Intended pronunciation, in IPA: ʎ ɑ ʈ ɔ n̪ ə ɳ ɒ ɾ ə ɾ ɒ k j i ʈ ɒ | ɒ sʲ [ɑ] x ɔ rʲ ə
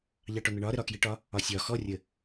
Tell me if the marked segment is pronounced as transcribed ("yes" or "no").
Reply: no